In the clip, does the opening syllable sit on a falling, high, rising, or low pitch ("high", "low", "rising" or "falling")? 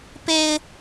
high